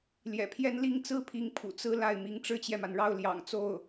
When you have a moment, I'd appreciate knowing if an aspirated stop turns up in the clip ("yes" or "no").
yes